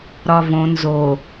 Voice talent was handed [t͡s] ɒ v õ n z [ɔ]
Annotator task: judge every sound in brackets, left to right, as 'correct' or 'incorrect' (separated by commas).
incorrect, incorrect